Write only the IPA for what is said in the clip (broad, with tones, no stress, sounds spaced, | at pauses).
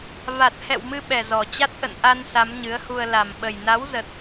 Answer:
v a˨˩ t̚ h ɛ̰˧˨ w m ɨ˧ ɓ ɛ˨˩ z ɔ˨˩ t͡ɕ a˦˥ t̚ ʔ ə̰˧˨ n ʔ a˧ n s a˨˦ m ɲ ɨ˨˦ ə̯ h u˧ ə̯ l a˨˩ m ɓ ə˨˩ j n a˨˦ w z ə˨˩ t̚